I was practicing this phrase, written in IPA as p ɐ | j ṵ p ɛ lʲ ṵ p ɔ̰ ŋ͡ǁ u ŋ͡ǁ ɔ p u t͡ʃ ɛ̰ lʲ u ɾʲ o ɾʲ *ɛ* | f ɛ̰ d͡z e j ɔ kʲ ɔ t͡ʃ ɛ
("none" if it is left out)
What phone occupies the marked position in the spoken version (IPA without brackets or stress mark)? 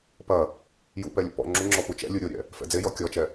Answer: ɛ̰